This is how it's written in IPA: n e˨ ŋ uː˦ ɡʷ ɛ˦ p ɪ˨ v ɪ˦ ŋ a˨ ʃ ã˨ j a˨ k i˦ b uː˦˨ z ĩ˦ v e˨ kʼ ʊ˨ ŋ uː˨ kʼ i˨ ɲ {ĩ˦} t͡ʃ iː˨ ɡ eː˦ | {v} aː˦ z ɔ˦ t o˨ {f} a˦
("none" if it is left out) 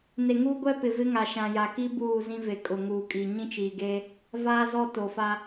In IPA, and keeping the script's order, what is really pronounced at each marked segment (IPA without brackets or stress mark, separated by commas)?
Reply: ĩ˦, v, f